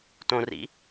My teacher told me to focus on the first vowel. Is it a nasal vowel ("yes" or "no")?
yes